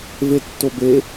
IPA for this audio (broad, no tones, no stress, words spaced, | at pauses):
vetːobe